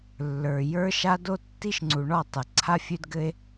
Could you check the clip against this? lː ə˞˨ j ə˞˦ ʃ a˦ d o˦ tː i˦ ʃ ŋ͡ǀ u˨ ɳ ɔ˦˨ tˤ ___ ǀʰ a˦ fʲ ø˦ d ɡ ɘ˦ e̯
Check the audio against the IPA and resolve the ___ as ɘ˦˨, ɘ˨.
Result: ɘ˨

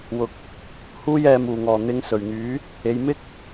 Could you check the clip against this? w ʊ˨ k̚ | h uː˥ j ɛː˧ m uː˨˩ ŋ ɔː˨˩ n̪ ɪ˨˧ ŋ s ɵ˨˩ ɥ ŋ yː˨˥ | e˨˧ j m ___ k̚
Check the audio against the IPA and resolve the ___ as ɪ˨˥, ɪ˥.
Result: ɪ˥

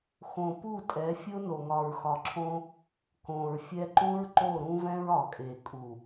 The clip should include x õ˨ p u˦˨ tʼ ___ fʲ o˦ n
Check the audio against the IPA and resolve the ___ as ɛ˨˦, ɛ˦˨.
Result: ɛ˨˦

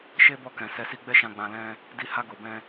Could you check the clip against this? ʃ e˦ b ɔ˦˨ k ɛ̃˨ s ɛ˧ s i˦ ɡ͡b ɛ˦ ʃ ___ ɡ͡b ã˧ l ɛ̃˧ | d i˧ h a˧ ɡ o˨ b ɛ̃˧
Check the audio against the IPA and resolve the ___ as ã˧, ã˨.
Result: ã˧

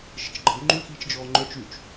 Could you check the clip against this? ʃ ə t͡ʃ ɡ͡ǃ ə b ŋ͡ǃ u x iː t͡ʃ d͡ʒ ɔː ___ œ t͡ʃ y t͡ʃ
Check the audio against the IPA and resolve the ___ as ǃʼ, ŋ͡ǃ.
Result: ŋ͡ǃ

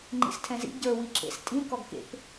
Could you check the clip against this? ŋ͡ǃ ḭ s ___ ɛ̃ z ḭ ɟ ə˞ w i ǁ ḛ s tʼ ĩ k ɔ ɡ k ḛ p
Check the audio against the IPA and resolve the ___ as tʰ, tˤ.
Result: tʰ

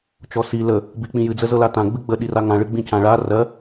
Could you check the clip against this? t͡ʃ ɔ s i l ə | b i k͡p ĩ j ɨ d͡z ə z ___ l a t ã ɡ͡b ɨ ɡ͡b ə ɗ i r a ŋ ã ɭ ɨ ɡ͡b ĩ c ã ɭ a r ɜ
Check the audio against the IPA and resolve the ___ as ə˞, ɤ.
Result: ɤ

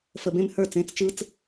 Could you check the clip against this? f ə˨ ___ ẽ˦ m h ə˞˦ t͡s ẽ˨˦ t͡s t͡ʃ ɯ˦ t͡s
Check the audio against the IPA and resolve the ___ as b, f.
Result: b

